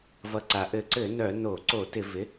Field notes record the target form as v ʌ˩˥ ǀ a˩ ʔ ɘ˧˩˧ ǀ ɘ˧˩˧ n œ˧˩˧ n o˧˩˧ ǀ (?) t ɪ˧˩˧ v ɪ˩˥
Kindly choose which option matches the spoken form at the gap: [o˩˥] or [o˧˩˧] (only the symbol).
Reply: o˧˩˧